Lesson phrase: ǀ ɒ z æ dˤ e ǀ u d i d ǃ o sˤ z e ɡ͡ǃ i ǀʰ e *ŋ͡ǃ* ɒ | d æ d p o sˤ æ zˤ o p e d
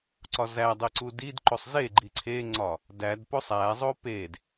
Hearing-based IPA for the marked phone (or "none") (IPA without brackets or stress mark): ŋ͡ǀ